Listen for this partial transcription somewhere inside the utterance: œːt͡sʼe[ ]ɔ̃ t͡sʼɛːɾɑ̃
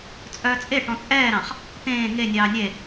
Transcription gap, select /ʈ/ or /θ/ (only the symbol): ʈ